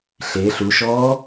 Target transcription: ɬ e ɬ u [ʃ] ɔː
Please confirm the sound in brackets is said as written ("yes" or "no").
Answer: yes